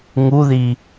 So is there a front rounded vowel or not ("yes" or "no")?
no